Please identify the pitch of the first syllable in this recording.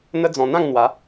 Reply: high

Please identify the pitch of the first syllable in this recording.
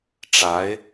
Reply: rising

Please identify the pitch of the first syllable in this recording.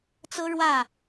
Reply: high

